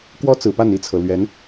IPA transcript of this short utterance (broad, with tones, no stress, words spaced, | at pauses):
kwɔ˦t͡sɹ̩˨˩pa˥˨n i˥˨t͡sʰɤ˩ lɥɛ˨˦n